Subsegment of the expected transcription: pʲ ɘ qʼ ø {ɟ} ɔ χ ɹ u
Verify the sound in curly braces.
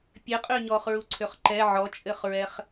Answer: incorrect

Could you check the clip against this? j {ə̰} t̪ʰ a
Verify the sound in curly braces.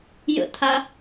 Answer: correct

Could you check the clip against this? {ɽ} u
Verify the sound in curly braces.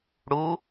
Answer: correct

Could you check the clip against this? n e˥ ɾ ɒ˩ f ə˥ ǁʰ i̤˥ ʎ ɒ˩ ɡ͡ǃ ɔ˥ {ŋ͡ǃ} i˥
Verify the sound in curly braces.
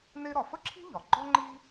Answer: correct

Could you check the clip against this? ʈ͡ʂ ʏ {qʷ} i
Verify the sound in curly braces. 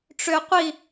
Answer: correct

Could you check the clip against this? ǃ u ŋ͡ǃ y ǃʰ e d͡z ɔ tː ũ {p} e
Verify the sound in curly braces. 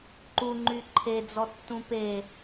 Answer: correct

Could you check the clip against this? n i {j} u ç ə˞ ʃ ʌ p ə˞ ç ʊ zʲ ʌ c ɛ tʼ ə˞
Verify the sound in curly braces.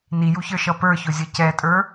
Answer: correct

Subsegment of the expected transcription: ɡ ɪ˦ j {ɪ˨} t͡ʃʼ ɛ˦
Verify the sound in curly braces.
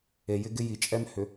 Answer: incorrect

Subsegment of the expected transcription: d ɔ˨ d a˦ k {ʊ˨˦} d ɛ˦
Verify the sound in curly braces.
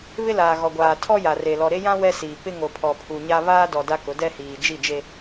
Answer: correct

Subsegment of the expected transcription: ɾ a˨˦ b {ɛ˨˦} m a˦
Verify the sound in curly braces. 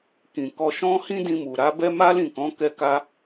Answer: incorrect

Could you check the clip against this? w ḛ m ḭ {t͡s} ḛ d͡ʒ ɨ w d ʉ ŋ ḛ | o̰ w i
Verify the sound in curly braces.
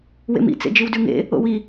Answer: correct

